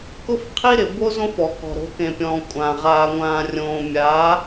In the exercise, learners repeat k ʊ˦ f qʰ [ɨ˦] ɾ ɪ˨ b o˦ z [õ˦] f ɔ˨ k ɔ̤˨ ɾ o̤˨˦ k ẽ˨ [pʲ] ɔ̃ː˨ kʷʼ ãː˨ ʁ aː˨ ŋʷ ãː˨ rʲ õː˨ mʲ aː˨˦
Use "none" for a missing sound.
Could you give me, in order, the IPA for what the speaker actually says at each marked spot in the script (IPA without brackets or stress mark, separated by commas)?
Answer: i˦, õ˦, pʲ